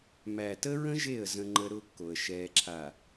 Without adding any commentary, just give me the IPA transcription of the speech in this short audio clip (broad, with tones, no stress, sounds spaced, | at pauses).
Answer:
m æ˨ t ə˦ ɹ ə̃˦ ʒ e˦˨ ə̯ z ə̃˦ ŋ͡ǃ ə˦ ɾ ʊː˦ kː o˨ ə̯ ʃ ɛː˨ ǁʰ a˨